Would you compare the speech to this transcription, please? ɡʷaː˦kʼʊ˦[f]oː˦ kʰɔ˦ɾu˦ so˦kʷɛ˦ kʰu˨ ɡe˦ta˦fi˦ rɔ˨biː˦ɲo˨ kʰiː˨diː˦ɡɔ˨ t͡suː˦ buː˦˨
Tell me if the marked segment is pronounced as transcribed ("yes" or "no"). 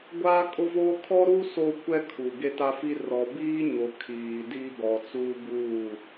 no